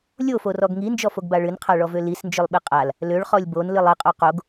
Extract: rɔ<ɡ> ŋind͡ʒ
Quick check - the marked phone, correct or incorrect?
correct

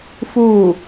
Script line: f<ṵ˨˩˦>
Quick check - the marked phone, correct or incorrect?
incorrect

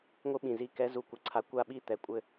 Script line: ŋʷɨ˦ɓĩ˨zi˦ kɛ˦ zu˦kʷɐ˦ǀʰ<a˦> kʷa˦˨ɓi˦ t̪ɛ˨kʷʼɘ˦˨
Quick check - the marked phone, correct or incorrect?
correct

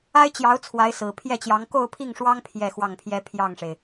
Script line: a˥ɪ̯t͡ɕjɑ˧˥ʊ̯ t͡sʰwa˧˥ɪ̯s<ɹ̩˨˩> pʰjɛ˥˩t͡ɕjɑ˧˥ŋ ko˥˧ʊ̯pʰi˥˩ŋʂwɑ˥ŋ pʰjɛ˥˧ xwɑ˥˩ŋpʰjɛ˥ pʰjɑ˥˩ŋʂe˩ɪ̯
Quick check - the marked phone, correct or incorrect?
correct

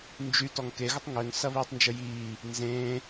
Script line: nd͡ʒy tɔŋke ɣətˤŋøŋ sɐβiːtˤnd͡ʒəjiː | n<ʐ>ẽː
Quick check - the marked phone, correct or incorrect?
incorrect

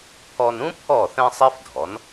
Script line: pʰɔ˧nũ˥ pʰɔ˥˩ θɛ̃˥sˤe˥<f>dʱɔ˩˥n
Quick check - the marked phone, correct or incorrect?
correct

